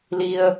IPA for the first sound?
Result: l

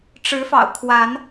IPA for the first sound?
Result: ʈ͡ʂ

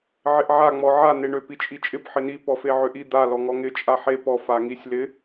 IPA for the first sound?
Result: ʕ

